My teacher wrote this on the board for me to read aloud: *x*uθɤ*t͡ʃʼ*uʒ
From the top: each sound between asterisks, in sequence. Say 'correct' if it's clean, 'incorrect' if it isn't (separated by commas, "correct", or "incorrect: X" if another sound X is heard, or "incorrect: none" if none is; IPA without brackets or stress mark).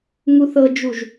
incorrect: ŋ, incorrect: d͡ʒ